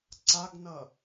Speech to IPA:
ǀ a ɡ n ʌ

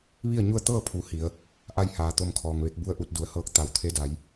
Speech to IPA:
ʋ i˥˨ ə̯ ɲ u˥˨ ə̯ t̪ ɤː˥˨ pʰ u˩˧ h i˩˧ ə̯ | ʔ a˥˨ j h aː˩ t̪ o˥˨ m kʰ ɔː˩ ŋ ʋ e˧˥ k̚ b u˥˨ ə̯ ʔ u˥˨ t̚ d u˩˧ ə̯ h ɤː˧˥ k̚ t̪ a˩˧ w t̪ʰ e˧˥ d a˩˧ j

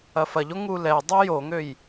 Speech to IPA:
ɐ f ɐ ʎ o ŋ u l ɛ dˤ ø j o ŋ ø j

